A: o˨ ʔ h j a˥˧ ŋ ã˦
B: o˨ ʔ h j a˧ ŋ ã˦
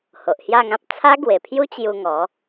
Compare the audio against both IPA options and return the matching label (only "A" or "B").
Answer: A